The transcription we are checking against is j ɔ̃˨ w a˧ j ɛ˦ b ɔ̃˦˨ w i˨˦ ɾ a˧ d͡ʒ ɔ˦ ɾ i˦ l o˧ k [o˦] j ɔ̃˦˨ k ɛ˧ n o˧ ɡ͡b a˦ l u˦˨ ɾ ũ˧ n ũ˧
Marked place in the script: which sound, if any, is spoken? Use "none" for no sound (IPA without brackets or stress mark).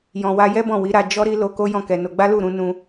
o˦